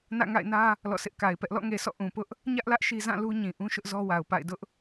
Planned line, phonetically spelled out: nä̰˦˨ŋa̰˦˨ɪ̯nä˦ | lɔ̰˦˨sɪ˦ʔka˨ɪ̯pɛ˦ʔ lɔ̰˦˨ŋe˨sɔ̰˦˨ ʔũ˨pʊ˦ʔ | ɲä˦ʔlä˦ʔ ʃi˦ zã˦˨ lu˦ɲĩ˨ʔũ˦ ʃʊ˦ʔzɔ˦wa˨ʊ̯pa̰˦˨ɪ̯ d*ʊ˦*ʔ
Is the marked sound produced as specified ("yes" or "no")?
yes